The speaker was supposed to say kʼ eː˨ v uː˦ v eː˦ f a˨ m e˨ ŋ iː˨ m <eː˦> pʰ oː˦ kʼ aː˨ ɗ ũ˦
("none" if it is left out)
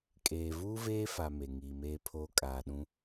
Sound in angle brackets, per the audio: eː˦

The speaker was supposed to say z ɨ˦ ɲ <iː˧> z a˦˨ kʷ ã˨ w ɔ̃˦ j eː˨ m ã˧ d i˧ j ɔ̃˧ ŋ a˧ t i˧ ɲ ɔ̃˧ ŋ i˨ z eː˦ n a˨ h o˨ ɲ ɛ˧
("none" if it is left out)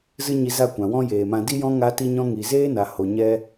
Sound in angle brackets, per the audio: i˧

